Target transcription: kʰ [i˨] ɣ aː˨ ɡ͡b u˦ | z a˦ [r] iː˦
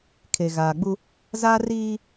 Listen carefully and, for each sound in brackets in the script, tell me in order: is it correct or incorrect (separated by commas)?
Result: incorrect, correct